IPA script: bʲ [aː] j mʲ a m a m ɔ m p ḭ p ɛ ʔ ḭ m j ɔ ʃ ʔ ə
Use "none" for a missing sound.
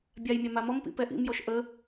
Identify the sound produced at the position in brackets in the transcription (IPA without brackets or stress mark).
a